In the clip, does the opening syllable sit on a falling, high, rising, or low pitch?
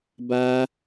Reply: high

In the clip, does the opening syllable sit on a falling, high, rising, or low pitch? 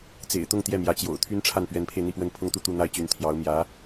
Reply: low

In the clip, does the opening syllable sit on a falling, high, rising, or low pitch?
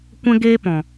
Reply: high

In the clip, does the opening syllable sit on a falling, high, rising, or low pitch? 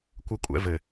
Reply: high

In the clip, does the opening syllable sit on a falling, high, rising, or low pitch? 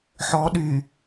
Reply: rising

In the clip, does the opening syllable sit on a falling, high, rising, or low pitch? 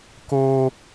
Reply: high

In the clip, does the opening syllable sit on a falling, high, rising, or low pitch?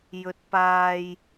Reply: rising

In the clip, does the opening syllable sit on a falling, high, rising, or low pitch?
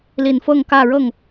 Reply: low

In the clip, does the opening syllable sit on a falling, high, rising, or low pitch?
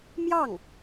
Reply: falling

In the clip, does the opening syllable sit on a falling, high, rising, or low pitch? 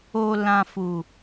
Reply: low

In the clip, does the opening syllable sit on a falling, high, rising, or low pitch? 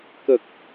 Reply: low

